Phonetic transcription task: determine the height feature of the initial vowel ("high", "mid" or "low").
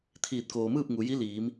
high